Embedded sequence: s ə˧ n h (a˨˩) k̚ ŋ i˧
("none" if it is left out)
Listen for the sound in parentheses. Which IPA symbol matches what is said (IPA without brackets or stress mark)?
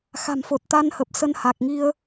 a˨˩